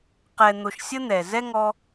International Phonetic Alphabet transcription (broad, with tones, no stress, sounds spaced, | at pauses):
q ɛ˨ n̪ o˨ ʃ sʲ ə˧ n̪ ɛ˨ z ɛ˦ ŋ ɔ˧